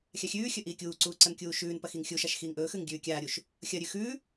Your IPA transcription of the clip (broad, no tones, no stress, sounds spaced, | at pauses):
xʲ a xʲ ʉː xʲ ɵ ʔ iː kʲ uː ǀ uː ǀ ɐ n kʲ uː ʃ ʉː n p ɐ x i ŋ xʲ u ʃ a ʃ x iː ŋ ʔ ɵː x ʉ ŋ ɡʲ ʉː kʲ aː ɾʲ u ʃ | xʲ ɐ ɾʲ ʉ x ʉ